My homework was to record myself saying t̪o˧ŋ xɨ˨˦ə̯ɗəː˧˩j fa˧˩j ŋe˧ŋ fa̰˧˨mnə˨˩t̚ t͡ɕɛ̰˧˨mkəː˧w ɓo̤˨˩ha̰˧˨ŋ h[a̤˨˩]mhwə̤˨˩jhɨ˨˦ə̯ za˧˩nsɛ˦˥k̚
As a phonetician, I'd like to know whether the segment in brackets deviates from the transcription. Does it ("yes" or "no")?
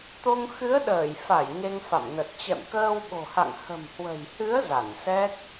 yes